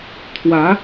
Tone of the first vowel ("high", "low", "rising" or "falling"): rising